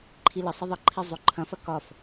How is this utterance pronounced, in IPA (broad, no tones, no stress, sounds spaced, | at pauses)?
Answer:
ǃʰ i l ə sˤ ə ðˤ ʌ ǃʰ i zˤ o ǃʰ ɐ̃ f ɐ k ɒ f